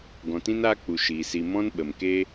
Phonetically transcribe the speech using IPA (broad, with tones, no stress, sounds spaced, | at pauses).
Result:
ɡ ɔ̃˨ t ĩ˦ n aː˦ k͡p u˨ ʃ iː˨ s i˧ m ɔ̃˦ n ɓ ə˨ m k e˦